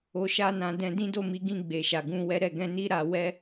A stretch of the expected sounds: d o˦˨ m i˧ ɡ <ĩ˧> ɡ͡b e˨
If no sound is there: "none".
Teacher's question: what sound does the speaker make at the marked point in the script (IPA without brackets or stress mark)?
ĩ˧